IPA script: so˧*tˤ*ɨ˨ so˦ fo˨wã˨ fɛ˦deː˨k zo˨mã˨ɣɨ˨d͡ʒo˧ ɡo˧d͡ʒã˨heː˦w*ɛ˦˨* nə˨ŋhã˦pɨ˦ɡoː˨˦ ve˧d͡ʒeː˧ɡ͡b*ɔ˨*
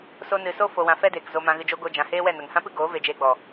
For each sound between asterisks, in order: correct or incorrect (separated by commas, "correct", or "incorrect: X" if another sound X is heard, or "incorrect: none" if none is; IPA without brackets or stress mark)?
incorrect: n, correct, correct